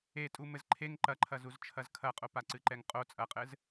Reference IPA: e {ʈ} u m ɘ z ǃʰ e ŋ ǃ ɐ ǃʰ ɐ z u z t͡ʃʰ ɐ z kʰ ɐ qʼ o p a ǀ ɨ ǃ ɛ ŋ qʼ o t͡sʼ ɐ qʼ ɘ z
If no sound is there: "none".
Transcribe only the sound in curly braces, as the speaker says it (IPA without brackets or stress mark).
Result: tʼ